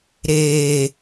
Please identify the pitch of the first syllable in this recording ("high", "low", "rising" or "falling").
low